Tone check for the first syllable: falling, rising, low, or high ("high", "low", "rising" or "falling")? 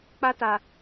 high